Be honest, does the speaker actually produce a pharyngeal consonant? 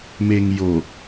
no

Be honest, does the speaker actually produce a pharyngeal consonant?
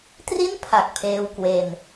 no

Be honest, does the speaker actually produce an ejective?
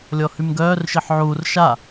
no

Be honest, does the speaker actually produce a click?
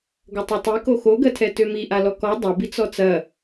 no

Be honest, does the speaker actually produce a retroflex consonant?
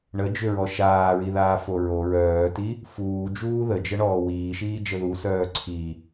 yes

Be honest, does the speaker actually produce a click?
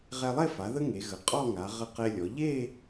no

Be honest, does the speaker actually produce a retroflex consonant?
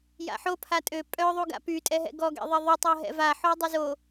no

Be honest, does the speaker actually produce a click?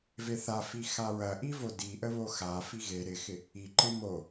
yes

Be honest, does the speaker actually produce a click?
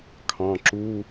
yes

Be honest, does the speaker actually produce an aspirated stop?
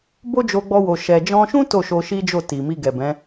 no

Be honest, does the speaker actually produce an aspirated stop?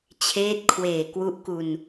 yes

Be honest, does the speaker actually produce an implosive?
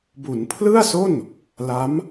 no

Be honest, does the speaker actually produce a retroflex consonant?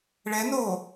yes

